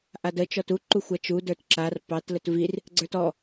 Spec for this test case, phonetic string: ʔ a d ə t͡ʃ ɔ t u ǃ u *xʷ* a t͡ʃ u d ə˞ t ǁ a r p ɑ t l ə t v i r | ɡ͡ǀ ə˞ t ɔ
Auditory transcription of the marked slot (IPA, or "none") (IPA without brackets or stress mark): xʷ